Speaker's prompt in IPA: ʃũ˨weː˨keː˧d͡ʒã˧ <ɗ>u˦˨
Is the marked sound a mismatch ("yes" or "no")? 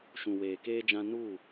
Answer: yes